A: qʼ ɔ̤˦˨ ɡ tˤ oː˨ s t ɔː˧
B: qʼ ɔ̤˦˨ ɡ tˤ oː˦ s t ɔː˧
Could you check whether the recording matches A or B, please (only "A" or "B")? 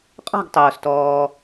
A